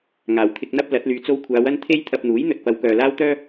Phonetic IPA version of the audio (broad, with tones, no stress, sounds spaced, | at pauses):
ŋ aː˨˩ w t̪ʰ ɪ˧ k̚ n̪ ɐ˥ p̚ l ɐ˨˥ t̚ l yː˧ t͡s o˥ w kʷʰ aː˨˧ w ɐ˥ n t̪ʰ e˥ j t̪ʰ ɐ˧ p̚ n̪ uː˨˥ j n̪ ɵ˨ t̚ p ɐ˨˧ w k œː˨ l aː˥ w t̪ œː˥